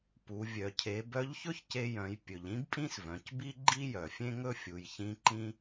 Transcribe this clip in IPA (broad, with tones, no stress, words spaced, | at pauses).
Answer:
pu˩˧ vʲœ˩cʰe˩˧ bœ˧˥ʎçɵ˥çce˧jœ̃˩˧j pʲɵ˩ʎĩ˥b pʼĩ˥svœ̃˩˧cbi˥ ɡ͡ǃi˥jœ˩fʲẽ˥ŋɵ˥ fʲu˩˧jçĩ˧˥ǃĩ˥